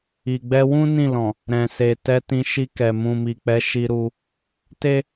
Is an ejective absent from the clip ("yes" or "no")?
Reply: yes